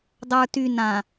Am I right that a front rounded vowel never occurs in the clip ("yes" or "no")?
no